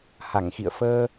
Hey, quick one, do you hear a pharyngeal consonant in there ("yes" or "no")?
no